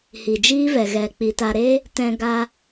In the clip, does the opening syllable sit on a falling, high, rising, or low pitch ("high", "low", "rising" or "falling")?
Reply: low